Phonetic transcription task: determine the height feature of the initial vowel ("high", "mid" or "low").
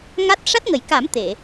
low